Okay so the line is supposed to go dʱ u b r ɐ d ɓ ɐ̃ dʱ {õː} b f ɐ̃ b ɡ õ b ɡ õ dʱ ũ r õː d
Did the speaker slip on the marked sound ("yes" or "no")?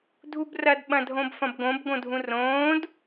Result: yes